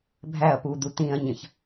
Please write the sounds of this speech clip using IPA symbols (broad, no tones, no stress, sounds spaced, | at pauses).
bʱ æ ɐ̯ p u d̪ u t̪ ĩ ɐ̯ ɲ ə̃ ç